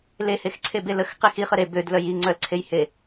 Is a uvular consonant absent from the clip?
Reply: no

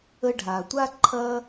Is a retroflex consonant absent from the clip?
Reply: no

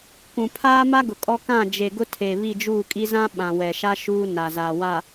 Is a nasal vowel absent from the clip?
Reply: no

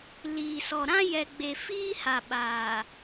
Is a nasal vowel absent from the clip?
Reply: no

